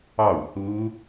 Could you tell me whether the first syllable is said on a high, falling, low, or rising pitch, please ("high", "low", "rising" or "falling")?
falling